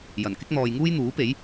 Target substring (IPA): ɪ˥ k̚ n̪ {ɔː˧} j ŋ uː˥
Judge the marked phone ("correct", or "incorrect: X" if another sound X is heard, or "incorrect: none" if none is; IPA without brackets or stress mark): incorrect: ɔː˨